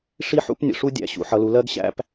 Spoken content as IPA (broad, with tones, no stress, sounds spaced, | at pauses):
ʂ i˦ ħ ṵ˦ p nʲ ə̰˧ ʂ u˦ dʲ æ̰˨ ɕ ṵ˧ ħ ʌ˧ l u˧ l ɜ˦ ɡ ɕ æ̰˦ p